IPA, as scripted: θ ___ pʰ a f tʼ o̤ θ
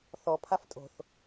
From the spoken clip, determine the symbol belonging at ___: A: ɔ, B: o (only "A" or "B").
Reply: A